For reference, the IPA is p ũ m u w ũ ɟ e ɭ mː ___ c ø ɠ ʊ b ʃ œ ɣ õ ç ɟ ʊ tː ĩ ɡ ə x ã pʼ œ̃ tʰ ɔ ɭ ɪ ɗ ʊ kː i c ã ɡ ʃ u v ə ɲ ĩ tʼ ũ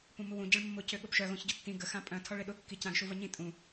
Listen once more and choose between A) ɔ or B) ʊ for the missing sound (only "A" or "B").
B